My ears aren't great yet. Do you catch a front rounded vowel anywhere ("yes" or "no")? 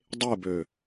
yes